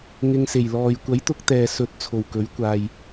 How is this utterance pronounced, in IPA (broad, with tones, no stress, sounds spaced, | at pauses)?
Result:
ŋ ɪ˧ ŋ s e˨˩ j l ɔː˨ j kʷ ɐ˨˥ j t̪ ʊ˧ k̚ t̪ ɛː˨ s ɵ˨˥ t̚ t͡sʰ o˨˩ w k ɵ˨˥ ɥ kʷ aː˨ j